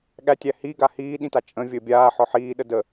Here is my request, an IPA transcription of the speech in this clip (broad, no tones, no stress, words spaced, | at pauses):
ɠætʲæ hiɡa hiːɗĩta t͡ʃʼə̃ vʲəːbʲaː ħɔħiːɗə də